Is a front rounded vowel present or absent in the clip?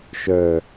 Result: present